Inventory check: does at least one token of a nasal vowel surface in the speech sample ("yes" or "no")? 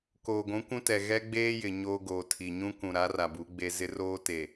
yes